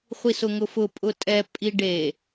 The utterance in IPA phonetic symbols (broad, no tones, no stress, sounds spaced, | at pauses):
χʷ i s ʊ ŋ ʊ f ʊ pʼ ʊ tʼ ɛ pʼ i ɖ e